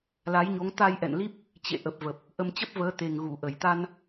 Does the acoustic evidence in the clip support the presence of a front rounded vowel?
no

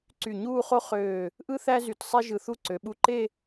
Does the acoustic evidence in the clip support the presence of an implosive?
yes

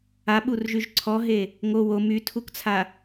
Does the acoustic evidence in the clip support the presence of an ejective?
no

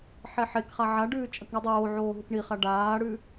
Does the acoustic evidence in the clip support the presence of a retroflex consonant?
yes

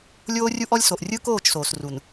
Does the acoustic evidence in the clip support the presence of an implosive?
no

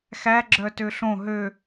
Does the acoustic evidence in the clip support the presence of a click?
yes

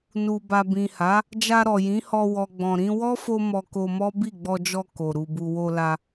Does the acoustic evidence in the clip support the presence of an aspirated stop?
no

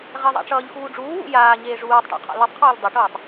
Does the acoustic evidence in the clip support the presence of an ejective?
no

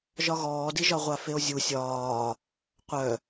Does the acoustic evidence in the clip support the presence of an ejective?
no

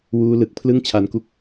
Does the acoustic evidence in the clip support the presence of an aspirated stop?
yes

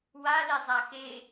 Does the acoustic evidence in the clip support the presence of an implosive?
no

